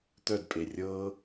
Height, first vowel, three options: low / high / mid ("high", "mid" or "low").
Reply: mid